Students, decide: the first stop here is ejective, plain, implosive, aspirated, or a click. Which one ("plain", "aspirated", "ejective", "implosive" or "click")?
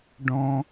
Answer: plain